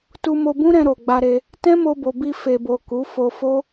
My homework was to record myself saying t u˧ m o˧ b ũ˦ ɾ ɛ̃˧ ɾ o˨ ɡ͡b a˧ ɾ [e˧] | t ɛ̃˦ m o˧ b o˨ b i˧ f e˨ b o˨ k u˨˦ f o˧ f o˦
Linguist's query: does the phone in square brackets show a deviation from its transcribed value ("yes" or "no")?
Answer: no